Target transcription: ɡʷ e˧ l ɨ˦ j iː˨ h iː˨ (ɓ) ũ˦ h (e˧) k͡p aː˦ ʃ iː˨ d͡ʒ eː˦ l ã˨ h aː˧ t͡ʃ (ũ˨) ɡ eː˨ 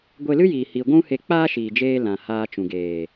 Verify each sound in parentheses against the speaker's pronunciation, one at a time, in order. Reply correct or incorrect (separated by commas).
incorrect, correct, correct